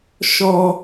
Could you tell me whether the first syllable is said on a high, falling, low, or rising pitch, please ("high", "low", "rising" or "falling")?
high